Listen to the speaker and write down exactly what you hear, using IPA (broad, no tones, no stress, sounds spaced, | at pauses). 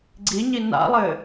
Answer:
ɡ͡ǀ i ɲ i n a̰ lˠ ɘ